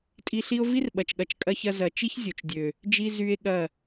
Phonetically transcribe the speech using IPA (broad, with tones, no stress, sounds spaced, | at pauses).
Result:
tʼ i˧ ɬ i˦ o̯ v i˦ r ɓ ɐ˨ t͡ʃ ɠ ɐ˨ t͡ʃ kʼ ɐ˧ ç ɐ˧ z ɐ˨ t͡ʃ i˦ ç zʲ o˨ t͡ʃ dʲ ø˨ | d͡ʒ i˧ z y˧ e̯ ɠ ɐ˦˨